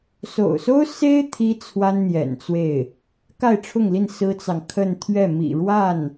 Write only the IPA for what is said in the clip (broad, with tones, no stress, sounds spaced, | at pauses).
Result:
s o̰˨˩ ʊ̯ s o˥ ʊ̯ s e˥ ɪ̯ t̪ʰ i˥ t͡sʰ w a˥ n n̪ j ɛ̰˨˩ n t͡s w e˥˩ ɪ̯ | k a˥˧ ɪ̯ ʈ͡ʂʰ ʊ˥˧ ŋ l i˥˩ n s ɹ̩˥ t͡s ɑ˨ ŋ kʰ ə˥˧ n t̪ʰ ɥ ɛ˥˩ m ḭ˨˩ ɻ w a˥˩ n